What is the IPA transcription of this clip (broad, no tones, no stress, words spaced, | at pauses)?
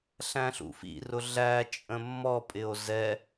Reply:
ɬæ̃ɬṵfḭrʊ ɮæt͡ʃʼə̃ mːɔpʼɪo̯ zɛ